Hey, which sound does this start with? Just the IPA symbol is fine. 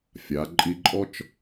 fʲ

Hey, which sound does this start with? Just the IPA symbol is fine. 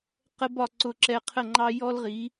q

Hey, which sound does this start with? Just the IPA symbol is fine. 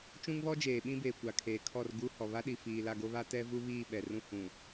t͡ʃ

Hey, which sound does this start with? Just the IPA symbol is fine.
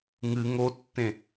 ŋ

